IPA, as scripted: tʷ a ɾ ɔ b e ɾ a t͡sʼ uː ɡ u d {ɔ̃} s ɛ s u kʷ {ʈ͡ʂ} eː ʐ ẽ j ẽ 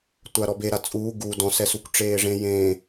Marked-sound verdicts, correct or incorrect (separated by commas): correct, correct